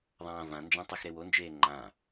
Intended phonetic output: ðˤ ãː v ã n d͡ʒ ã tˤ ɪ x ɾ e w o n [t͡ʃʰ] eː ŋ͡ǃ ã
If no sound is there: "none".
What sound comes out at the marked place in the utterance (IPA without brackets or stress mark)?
d͡ʒ